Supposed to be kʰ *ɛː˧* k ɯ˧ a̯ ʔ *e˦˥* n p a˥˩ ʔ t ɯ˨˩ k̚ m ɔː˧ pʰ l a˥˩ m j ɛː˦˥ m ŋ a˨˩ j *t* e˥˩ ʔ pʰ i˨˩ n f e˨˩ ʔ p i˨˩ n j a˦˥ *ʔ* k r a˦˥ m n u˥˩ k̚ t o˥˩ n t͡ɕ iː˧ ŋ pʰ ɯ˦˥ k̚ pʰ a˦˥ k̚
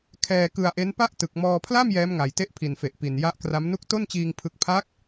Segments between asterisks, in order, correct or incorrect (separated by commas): correct, correct, correct, correct